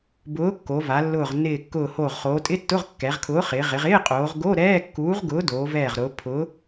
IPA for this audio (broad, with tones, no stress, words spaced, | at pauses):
bʊː˨˥kːo˩˧va˩˧ lːʊː˧˩ʁnːɪː˧˩kːʊː˧˩hoː˧˩ʁ χoː˩˧tʼɪ˧˥˧tːʊ˧˥˧ʁ kːɛ˩˧ʁkʰʊː˨˥χɪː˩˧ ʁɪ˩˧ʁ ɪː˧˥˧qʼoː˩˧ʁɡo˧˥˧ ɾɛː˧˥˧kːuː˨˥ʁɡʊː˨˥ doː˩˧vɛː˧˩ʁɾʊː˩˧ pʰʊː˨˥